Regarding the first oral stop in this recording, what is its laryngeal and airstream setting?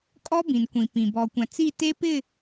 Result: ejective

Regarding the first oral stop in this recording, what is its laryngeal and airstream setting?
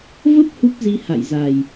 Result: plain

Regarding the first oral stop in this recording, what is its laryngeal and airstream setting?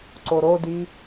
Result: click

